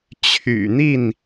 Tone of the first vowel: low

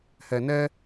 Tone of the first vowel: low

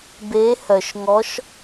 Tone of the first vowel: rising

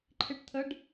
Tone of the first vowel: falling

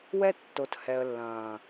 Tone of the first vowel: high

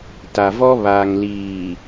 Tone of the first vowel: low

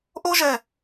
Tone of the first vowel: high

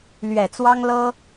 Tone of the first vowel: low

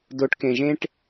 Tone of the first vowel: rising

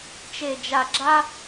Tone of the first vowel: low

